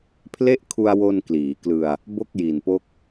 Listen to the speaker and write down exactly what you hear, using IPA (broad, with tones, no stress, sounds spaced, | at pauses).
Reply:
pʰ l e˥˩ ʔ kʰ u˧ a̯ w o˧ n k l iː˩˦ k l ɯ˧ a̯ | b o˥˩ k̚ j i˨˩ n p o˦˥ k̚